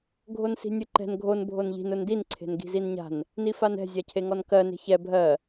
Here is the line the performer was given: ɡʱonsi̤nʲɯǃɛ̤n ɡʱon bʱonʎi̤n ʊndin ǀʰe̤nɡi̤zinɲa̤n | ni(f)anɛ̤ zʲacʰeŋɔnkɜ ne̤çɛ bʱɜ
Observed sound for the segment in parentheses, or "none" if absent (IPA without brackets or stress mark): f